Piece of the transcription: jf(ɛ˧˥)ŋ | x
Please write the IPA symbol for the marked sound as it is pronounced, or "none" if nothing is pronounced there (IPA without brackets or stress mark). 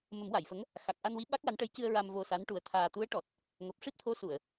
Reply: ə˧˥